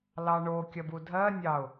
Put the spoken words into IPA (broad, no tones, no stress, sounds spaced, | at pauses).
l ɑ ɳ o kʲ ɐ b u dʱ ɜ nʲ ɑ ʊ̯